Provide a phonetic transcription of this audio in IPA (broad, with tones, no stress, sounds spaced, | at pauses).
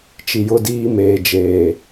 t͡ʃ i˨ j ʊ˦ d iː˦ m eː˨ d͡ʒ eː˨